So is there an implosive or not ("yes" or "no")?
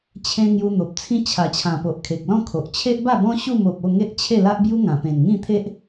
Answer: no